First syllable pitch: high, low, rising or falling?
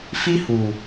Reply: high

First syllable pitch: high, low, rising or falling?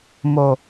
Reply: low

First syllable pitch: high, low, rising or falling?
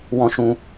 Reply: high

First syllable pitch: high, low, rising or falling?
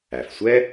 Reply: low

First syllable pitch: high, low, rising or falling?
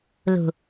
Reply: low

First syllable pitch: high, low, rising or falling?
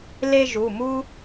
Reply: high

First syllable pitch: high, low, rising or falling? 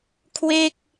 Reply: falling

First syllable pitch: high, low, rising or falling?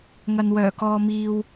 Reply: low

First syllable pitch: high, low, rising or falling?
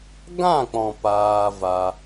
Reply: falling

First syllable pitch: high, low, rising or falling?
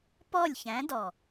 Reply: falling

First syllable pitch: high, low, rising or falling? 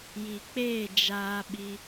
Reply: low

